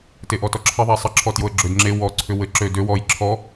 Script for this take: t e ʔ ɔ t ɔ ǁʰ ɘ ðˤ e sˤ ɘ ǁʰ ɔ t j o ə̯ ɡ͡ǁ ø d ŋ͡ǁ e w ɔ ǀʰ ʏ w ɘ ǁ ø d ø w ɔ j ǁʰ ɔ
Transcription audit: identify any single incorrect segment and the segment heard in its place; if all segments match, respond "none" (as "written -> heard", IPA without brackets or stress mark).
none